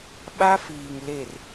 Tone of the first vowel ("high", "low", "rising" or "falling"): high